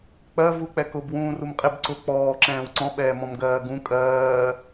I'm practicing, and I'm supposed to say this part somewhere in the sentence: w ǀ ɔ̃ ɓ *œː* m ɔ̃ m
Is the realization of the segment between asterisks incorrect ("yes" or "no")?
yes